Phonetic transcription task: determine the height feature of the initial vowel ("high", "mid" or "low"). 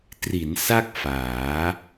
high